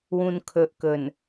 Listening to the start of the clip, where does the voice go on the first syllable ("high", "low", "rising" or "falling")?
low